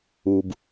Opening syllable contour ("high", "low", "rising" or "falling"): low